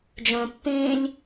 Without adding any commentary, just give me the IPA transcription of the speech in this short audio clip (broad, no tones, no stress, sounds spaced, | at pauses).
d͡ʒ œ̃ pː ẽː lʲ